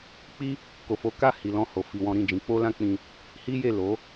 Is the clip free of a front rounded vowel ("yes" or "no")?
yes